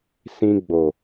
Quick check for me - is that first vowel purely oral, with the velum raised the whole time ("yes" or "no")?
no